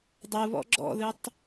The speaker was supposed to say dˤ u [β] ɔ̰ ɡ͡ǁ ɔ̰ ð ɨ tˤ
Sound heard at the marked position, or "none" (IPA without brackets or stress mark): β